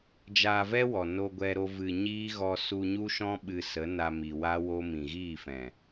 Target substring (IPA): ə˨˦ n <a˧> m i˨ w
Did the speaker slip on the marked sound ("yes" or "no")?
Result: no